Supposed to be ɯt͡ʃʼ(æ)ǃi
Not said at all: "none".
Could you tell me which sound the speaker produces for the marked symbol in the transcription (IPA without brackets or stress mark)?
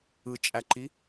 æ